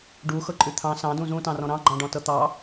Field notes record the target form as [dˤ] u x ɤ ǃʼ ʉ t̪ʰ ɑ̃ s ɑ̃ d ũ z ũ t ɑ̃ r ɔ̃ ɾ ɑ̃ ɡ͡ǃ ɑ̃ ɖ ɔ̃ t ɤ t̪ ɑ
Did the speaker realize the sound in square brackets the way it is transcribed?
no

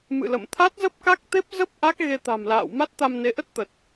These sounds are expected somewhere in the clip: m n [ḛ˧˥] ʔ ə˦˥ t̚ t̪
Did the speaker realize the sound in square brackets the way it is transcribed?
no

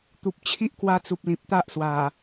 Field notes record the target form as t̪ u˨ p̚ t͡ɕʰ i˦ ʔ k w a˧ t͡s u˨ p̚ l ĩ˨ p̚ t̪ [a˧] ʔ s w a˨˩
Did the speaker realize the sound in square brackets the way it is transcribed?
no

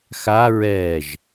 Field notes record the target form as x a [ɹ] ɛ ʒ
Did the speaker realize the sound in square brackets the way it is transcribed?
yes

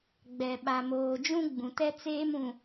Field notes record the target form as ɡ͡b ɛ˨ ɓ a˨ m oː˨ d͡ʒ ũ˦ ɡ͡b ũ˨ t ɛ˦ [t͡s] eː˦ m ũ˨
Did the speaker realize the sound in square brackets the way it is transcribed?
yes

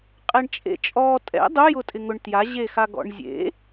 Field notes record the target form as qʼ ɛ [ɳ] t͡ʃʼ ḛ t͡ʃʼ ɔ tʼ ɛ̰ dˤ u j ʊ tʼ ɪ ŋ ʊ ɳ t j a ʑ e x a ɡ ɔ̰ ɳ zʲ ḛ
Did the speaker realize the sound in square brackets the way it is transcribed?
yes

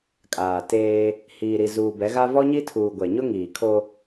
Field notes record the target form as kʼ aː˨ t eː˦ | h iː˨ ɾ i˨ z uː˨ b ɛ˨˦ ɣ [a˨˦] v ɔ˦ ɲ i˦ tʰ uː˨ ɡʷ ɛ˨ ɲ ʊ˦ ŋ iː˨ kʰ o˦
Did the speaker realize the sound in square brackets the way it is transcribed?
no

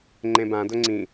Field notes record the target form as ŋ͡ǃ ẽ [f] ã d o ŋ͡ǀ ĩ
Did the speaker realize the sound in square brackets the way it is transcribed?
no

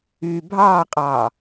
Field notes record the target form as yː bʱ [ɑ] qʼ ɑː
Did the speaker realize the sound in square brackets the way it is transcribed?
no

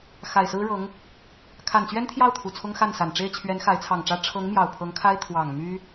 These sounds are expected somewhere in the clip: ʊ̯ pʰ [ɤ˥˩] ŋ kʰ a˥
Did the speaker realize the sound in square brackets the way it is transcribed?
no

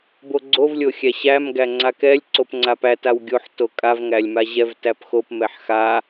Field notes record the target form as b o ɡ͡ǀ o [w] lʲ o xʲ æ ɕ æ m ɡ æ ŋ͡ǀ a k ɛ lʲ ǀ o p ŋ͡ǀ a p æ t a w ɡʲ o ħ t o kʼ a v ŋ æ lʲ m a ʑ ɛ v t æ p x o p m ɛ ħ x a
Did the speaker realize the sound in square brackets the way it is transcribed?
no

